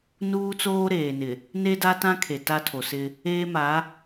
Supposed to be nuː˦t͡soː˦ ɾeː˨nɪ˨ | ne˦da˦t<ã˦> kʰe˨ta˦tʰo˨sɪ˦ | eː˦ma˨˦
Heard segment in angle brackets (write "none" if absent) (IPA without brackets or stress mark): ã˦